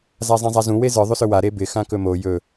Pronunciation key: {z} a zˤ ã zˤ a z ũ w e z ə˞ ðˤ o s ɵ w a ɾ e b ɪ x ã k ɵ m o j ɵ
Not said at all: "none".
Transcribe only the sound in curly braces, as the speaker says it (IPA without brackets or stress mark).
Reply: z